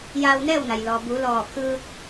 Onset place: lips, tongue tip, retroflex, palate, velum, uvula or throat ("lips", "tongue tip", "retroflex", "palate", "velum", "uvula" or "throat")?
palate